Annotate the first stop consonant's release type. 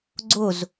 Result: click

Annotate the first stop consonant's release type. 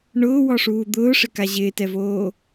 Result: plain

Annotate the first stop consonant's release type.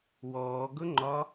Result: plain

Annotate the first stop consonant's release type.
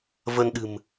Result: implosive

